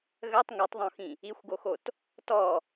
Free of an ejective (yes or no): yes